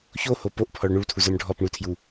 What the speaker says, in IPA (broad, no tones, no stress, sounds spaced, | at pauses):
ç o h o p o ʔ pʰ ɔ ɭ ɳ u ɭ tʰ u z ə˞ m ɖʱ ɔ p ɳ u tʰ j u